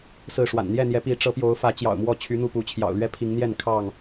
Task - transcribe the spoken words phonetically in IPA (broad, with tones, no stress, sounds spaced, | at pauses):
s ɹ̩˥˨ ʂ w a̰˨˩ n n̪ j ɛ˥˨ n̪ j ɛ˨˦ p i˨˦ ʈ͡ʂ ɤ˨˦ p j o˨˦ ʊ̯ f ä˨˦ t͡ɕ j ɑ̰˨˩ ʊ̯ m w ɔ˥˨ t͡ɕʰ y˨˦ n̪ u˥˨ p u˨˦ t͡ɕʰ j ɑ̰˨˩ ʊ̯ l ɥ ɛ˦ pʰ i˨˦ ŋ n̪ j ɛ˥˨ n kʰ ɑ˥˨ ŋ